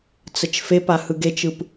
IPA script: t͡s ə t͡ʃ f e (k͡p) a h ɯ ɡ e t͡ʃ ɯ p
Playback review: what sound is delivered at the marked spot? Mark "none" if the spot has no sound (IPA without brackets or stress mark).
p